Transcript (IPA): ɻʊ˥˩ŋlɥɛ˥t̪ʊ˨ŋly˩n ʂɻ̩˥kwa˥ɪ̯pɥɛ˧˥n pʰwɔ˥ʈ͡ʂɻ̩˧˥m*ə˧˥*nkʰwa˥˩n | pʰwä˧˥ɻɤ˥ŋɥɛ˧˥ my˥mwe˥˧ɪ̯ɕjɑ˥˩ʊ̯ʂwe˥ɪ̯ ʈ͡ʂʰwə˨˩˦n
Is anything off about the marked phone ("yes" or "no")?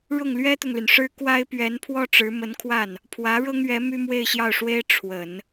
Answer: no